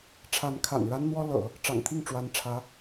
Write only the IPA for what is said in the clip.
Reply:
ʈ͡ʂʰ a˧˥ n kʰ a̰˨˩ n ɻ a˥ n n̪ w ɔ˥ l ɤ̰˨˩˦ | ʈ͡ʂ ɑ̰˨˩ ŋ t̪ʰ i˥˩ ŋ ʈ͡ʂ w a˧˥ n ʈ͡ʂʰ ä˧˥

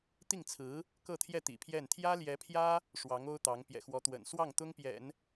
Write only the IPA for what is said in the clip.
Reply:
t̪ i˥˩ ŋ t͡sʰ ɹ̩˧˥ | k ɤ˥˧ t̪ʰ j ɛ˥˩ t̪ ḭ˨˩ pʰ j ɛ˥˩ n t̪ʰ j ä˥ l j ɛ˧˥ pʰ j ä˥ | ʂ w ɑ˧˥ ŋ o˥ ʊ̯ t̪ ɑ˧˥ ŋ p j ɛ̰˨˩ x w ɔ˧˥ t̪ w ə̰˨˩ n s w ɑ˥˩ ŋ t̪ ʊ˥ ŋ p j ɛ̰˨˩˦ n

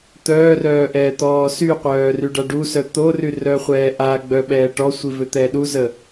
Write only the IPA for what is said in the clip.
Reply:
t̪ œː r œː ʔ ɛː t̪ ɔː s y qʷ œː r y ɖ a ɖ u s œ t̪ o r y r œ χʷ ɛː ʔ a ɡ͡b œ ɓ ɛː ʈ ɔ sʷ i v ø t̪ ɛː ɗ u z ə

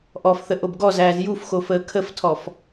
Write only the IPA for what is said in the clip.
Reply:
ʔ ɔ f θ ə ʔ o b ɡ ɔ z æː z j u f x o f əː kʰ ə f tʰ ɔ f

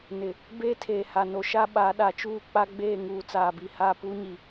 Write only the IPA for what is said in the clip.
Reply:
n ɪ˨ | b eː˦ tʰ eː˨ h a˨ n o˨ ʃ a˦ ɓ a˨˦ ɗ a˨ t͡ʃ uː˦˨ k͡p a˦ ɡ͡b eː˦˨ ŋ uː˨ t͡s aː˨ b i˨ h aː˦˨ p uː˦ ɲ i˨

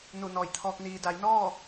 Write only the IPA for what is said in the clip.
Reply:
n u˧˩ n ɔː˧˩ j t̪ʰ ɔː˧ k̚ n iː˩ d a˩˧ j n ɔː˥˨

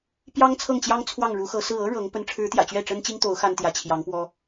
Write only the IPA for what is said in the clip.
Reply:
p j ɑ˥ ŋ t͡sʰ ɤ˥˩ ŋ t͡ɕ j ɑ˥ ŋ t͡sʰ w ɑ˥˩ ŋ ɻ u˧˥ x ɤ˧˥ s ɹ̩˥˩ ɤ˥ ɻ ɤ˧˥ ŋ p ə˧˥ n ʈ͡ʂʰ ɻ̩˧˥ t̪ j ä̰˨˩ t͡ɕ ɥ ɛ˥˩ ʈ͡ʂ ə˥ n t͡ɕ i˥ ŋ t̪ o˧˥ ʊ̯ x a˥ n t̪ j ä˧˥ t͡ɕʰ j ɑ˧˥ ŋ p w ɔ˥

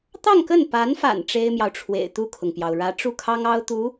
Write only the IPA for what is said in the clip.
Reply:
t̪ ɑ˥˧ ŋ k ə˥˩ n p a˧˥ n f a̰˨˩ n ʈ͡ʂ e˥ ɪ̯ m j ɑ˨ ʊ̯ ʈ͡ʂʰ w ḛ˨˩ ɪ̯ t̪ u˥˩ kʰ ʊ˩ ŋ p j ɑ˩ ʊ̯ ɻ ä˧˥ ʈ͡ʂ u˥˩ kʰ ɑ˥ ŋ ɑ˥ ʊ̯ t̪ u˧˥

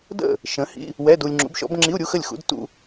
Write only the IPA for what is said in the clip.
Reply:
d ə̰˥˩ | ʃ ə̃˨˥ h ḭ˧˥˧ | w ɛ˧˥˧ d u˧ lʲ ŋ͡ǁ ṵ˨˥ b ʃ ɔ̰˨˥ b ŋ͡ǁ i˧˥˧ u̯ ɾʲ u˧˥˧ x ə˥˩ lʲ x ṵ˧˥˧ d t ṵ˧

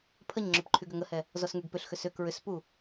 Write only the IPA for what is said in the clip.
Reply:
pʰ ə ɲ ŋ͡ǁ ʏ p ǃʰ y ɡ ʏ ŋ ə h ɛ | z ɔ s ŋ y ɡ p ʏ ɬ x ʏ s ʏ k ɹ ʏ s p u

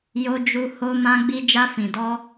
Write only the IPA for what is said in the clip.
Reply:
j o˧ d͡ʒ u˧ h o˧ m ã˧ ɡ͡b i˧ d͡ʒ a˧ f ĩ˨ d ɔ˧

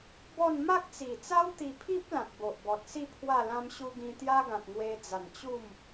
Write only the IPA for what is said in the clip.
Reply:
b ɔ˥˧ n m a˦ k̚ t͡s i˨˩ t͡s a˦ w t̪ i˧ pʰ i˦ p̚ l ã˨ t̚ b o˨ ʔ b ɔ˨ t̚ s i˥˧ pʰ w a˥˧ l ã˦ m ɕ u˦ ɡ ĩ˧ t̪ j a˦ ɡ ã˨ t̚ ŋ w e˧ d͡z a˨˩ n t͡ɕ u˥˧ m

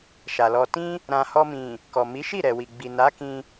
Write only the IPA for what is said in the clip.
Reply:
ʃ a˨ l ɔ˧ t ĩ˦ | ɾ ã˨ h ɔ˧ m ĩ˨ | k ɔ˨ m i˨˦ ʃ i˦˨ ɾ ɛ˨ w i˨ ɡ͡b i˨ n a˨˦ k ĩ˧

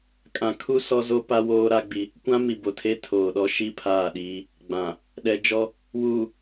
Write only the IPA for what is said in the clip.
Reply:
kʼ ã˨ kʰ u˦ s ɔ˦ z o˦ p a˦ w oː˦ ɾ a˦ ɡ͡b i˦ | kʷ ã˦ m i˨ b o˨ tʰ e˦ tʰ oː˨ ɗ ɔ˦ ʃ i˦˨ pʰ aː˦˨ ɗ iː˦ | ɡ͡b ã˨ | ɗ ɛ˨ d͡ʒ ɔ˦ | w uː˨

